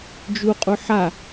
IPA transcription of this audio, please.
d͡ʒ u qʼ u ħ a

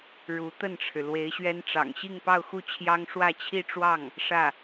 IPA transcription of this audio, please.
ɻ u˧˥ t̪ ə˥˩ n ʈ͡ʂʰ ɻ̩˩ l w e˧˥ ɪ̯ ɕ ɥ ɛ˥ n ʈ͡ʂ ɑ̰˨˩ ŋ ɕ i˥˧ ŋ p ɑ˥˧ ʊ̯ x u˥˩ t͡ɕʰ j ɑ˥ ŋ ʂ w ä˥˧ t͡ɕʰ i˥˧ ʈ͡ʂ w ɑ˥˩ ŋ | ʂ ä˥˩

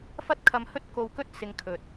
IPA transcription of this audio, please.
f ɐ˥ t̚ kʰ ɐ˧ m h ɵ˥ t̚ k o˧ w k ɵ˥ t̚ s ɪ˧ ŋ kʰ ɵ˨ t̚

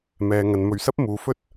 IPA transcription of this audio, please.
m ɛː˨ ŋ ɐ˨ n m ɵ˨˩ ɥ s ɐ˥ p̚ m uː˨ f ɵ˥ t̚

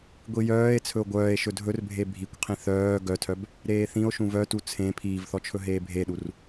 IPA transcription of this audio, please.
ɡʷ i j œː e̯ t͡sʰ ɵ o̯ ɡʷ œː e̯ ʃ ɵ dʱ ɵ r bʱ e bʱ i kʷ qʰ ĩ θ œː ɡ œ tʰ œ b | ɾ eː θ ĩ o̯ ʃ ũ v œ t u t͡sʰ ẽ pʰ iː v θ ɔ t͡ʃʰ ɵ ɦ eː bʱ e ɗ u r

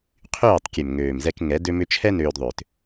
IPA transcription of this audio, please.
qʰ yː˦˨ tˤ kʲ ø˨ m ŋ øː˨ m z ɛ˧ k ŋ ɛ˨˦ d ø˧ m ʏ˧ t͡ʃʰ ɛ˦ n øː˧ d ðˤ ʏː˨ t

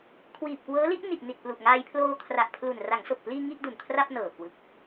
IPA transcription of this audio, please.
kʰ w iː˨˩ p̚ k w ɤː˦˥ l i˦˥ ʔ n i˨˩ ʔ n i˨˩ t̚ p l u˨˩ ʔ ŋ aː˧ j pʰ l oː˧ kʰ r a˨˩ ʔ pʰ l u˨˩ n r a˩˦ ŋ s o˨˩ k̚ p l iː˧ ŋ i˥˩ ʔ d u˨˩ n kʰ r a˥˩ p̚ n ɤː˨˩ k w ɯ˨˩ k̚

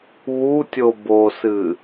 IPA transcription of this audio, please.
β u tʲ o b o s ɨ

